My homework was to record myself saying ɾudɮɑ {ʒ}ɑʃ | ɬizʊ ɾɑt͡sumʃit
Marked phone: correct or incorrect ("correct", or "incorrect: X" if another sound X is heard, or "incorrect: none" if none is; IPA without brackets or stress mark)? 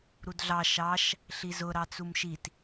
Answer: incorrect: ʃ